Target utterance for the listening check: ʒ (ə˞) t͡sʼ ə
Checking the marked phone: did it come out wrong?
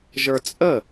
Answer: no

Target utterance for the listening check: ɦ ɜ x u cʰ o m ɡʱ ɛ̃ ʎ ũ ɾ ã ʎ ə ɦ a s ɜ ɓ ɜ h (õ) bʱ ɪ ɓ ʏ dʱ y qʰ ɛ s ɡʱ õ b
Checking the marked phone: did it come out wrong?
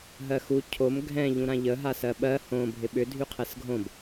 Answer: no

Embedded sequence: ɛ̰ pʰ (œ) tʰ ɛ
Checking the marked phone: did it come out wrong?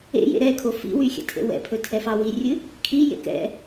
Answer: yes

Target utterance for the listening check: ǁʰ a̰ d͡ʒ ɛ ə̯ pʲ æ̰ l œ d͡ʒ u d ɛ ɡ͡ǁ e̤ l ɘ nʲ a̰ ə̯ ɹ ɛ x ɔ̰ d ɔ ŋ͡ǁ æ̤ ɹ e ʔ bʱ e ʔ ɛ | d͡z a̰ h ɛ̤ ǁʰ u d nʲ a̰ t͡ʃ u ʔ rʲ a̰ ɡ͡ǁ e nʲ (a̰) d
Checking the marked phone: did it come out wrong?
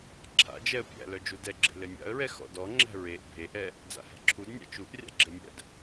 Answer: yes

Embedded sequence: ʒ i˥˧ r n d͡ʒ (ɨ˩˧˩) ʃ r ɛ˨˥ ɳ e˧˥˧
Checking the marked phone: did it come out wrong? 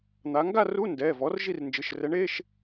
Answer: no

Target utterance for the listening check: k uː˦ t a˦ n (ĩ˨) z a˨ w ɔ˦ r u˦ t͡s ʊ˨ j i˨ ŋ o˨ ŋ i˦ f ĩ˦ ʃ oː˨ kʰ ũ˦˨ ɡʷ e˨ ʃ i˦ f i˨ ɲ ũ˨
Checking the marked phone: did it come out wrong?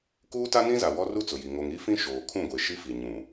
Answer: yes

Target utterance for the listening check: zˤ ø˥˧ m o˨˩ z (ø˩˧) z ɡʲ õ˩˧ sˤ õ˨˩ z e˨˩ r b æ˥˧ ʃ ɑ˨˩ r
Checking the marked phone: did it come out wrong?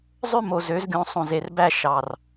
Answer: no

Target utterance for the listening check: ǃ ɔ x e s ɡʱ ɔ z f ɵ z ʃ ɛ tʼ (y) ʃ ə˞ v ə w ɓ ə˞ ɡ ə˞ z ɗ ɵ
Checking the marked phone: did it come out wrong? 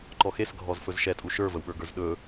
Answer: yes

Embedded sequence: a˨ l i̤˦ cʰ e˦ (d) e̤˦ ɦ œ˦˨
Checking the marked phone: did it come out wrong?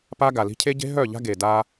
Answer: yes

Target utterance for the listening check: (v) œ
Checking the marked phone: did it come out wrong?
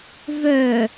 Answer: no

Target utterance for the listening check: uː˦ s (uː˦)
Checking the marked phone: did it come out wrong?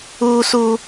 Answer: no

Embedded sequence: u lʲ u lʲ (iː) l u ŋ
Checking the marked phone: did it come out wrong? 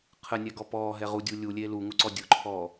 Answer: yes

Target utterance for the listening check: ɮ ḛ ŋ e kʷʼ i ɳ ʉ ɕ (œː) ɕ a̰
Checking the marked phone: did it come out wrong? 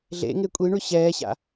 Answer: yes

